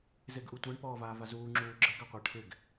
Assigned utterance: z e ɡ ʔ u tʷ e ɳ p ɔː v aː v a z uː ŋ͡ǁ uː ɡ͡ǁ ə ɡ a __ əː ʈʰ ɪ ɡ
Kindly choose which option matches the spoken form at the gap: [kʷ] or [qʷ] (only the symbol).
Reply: qʷ